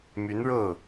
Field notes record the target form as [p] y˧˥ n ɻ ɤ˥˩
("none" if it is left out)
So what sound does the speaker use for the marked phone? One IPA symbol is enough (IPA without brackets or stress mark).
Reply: m